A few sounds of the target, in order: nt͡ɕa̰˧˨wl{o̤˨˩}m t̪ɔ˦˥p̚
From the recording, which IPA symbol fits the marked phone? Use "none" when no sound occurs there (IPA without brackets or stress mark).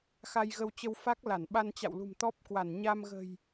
ṳ˨˩